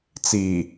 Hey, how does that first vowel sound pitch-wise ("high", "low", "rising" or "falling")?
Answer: low